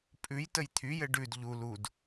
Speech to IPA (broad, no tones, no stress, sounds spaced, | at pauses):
pʼ ʉ j t ə j t̪ʰ y j ɘ ɖ ʉ d ʎ u l u d